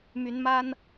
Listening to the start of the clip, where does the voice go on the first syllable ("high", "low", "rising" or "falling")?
rising